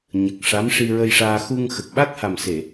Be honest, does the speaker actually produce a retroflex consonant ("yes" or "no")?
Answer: yes